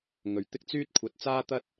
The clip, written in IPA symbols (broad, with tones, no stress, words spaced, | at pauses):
ŋɵ˨ɥt̪ɪ˥k̚t͡syː˥t̚ kʷʰɐ˨˥t̚t͡saː˥t̪ɐ˥t̚